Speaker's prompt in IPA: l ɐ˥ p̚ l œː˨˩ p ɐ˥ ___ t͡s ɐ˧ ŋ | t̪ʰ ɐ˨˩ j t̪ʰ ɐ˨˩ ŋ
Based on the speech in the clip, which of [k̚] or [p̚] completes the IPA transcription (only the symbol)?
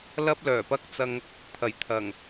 k̚